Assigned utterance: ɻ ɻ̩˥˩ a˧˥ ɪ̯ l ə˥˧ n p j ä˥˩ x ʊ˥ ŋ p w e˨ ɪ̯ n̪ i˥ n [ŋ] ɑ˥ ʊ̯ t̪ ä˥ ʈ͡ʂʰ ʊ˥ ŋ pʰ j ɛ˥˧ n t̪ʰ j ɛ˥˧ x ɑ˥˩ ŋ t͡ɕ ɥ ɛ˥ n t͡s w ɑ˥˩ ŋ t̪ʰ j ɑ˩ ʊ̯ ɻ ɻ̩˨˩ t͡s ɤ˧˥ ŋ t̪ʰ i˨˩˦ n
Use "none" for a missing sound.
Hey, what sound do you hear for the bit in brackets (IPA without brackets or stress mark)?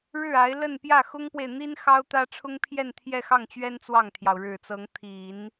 x